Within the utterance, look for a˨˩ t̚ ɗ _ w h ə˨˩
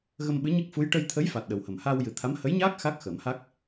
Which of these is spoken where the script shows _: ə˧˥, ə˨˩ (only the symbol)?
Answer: ə˨˩